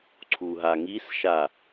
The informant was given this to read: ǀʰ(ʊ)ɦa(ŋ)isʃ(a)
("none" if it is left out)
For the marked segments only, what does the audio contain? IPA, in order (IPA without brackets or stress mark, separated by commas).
u, ŋ, a